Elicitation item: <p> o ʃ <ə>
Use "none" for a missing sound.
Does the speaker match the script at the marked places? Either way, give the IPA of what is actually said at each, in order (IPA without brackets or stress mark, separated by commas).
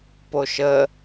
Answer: p, ə